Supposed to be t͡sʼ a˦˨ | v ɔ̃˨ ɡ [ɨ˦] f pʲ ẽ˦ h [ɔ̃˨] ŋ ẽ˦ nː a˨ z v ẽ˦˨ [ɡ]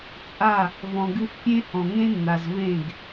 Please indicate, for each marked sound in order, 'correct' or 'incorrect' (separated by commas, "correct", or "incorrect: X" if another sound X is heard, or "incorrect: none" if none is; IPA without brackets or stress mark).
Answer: correct, correct, correct